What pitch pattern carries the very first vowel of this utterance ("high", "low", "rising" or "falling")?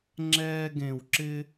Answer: high